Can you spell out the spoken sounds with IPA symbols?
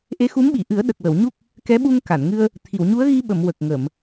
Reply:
ʔ e˧˥ x u˧˥ m ɓ i˨˩˨ ʔ ɨ˨˩˦ ə̯ ɗ ə˨˩ k̚ w ə˨˩˨ w ɲ u˦˥ k̚ | k ɛ˧˥ ɓ u˧ ŋ k a˨˩˨ n ŋ ɨ˧ ə̯ | t̪ʰ i˨˩˨ w ɲ u˧˥ ə̯ ɣ i˧ ɓ ə˨˩˨ m w ə˨˩ k̚ ŋ ə˨˩˨ m

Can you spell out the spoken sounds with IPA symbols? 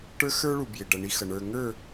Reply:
ʈ ə˞˦ x ə˞˦ ɭ u˨ b j ɪ˨ ɖ ʌ˨ ɳ i˦ x ʌ˨ ɳ ə˞˨ ŋ ə˞˦˨

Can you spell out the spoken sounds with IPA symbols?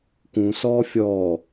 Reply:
k ũ s ɔː fʲ ɔː

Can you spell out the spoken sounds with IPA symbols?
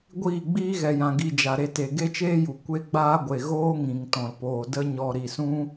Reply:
ɡʷ iː˦˨ ɡ͡b iː˦ ɣ ɛ˨ j ã˨ ɡ i˧ d͡ʒ a˨ ɾ e˧ t e˨ ɡ e˦ t͡ʃ eː˦ j u˨ kʷ e˦ ɡ͡b aː˦ ɡʷ e˨ ɣ oː˦ ŋ ĩ˨ ŋ t ɔ̃˨ l p oː˨ d ə˦ ɲ ɔ˧ ɾ i˨ s ũ˦

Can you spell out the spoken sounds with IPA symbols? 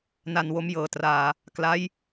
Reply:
n a˧ n w o˦˥ m j ɤː˨˩ t r aː˨˩ | k l a˦˥ j

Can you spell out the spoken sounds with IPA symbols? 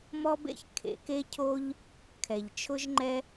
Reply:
m ɔ˥ b ḛ˥ ç kʰ ḛ˩ k e˥ cʰ o˥ ʎ | kʰ ɛ˩ ʎ t͡ʃʰ ʊ˥ ʒ ŋ͡ǃ ɛ˥

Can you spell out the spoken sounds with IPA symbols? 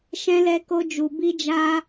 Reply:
ʃ ɛ̃˦ l ɛ˦ k o˦ d͡ʒ u˧ b i˦ d͡ʒ a˦

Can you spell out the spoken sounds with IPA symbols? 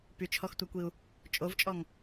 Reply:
p y t͡ʃʰ ɔ x tʷ a kʷ i u̯ | t͡ʃʼ o v t͡ʃʼ ɔ ŋ

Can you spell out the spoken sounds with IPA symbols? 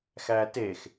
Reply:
x æ t e x

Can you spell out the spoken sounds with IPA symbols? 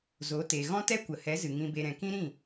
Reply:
z o˨˦ t e˨ ɣ ɔ̃˦ t ɛ˦ kʷ ə˨ h ɛ˨˦ z ɨ˨ ŋ ĩ˧ b e˧ ɾ ɛ̃˨ k ĩ˦ ɾ ĩ˦˨

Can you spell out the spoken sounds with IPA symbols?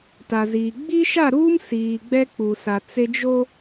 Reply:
t a˨ z iː˨ ɡ͡b iː˦ ʃ a˦˨ ɾ uː˦ m s iː˨ ɡ͡b ɛ˦ k͡p u˨ s a˨ t͡s e˦ d͡ʒ o˦

